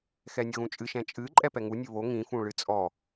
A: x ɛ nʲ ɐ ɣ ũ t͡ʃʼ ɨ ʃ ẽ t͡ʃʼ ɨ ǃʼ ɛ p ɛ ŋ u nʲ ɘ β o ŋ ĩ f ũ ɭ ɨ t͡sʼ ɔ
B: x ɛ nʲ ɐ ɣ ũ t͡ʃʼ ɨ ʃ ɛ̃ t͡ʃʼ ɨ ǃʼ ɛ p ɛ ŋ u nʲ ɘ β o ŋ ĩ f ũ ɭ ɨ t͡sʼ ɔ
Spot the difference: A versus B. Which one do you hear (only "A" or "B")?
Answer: B